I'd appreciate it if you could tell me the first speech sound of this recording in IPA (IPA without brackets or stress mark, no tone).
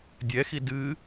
dʲ